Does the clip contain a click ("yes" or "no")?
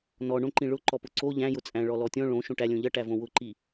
yes